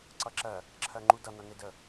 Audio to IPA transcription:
ǀ ʌ ǁ ɜ | ǁʰ ɜ ŋ͡ǃ u d ʌ n̪ ʌ n e d ə

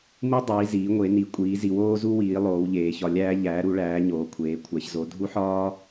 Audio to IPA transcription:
m u˧ dˤ iː˩˧ z iː˩˧ ŋʷ e˩˧ n i˩˧ kʷʼ iː˩˧ z i˩˧ w oː˧ z u˧ w iː˩˧ lˠ oː˩˧ w ʎ eː˩˧ ç ɒ˩˧ lʲ æː˧ ʎ æː˩˧ ɾ u˩˧ ɭ æː˩˧ ɲ oː˩˧ kʷʰ eː˩˧ kʷʰ æ˩˧ ç z o˩˧ dʱ u˧ ħ ɒː˧

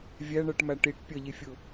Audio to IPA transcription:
vʲ æ ɳ ɜ ʈ m æ ʈ i ʈ pʲ ʌ ʎ i fʲ ʊ

